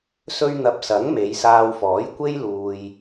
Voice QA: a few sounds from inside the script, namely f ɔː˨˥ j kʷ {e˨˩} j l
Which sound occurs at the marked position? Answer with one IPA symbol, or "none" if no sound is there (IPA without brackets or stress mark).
e˥